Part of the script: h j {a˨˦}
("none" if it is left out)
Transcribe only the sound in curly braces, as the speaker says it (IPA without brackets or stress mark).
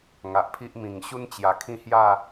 a˥˧